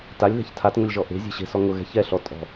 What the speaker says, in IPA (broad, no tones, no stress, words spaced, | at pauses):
talʲðɛ̤ç tʰatŋʊlʲʒɔ ʔe̤zʲe̤ ɕe̤sɔ ŋʊɣɛ̤ çɛɬɔ tʼɔ̤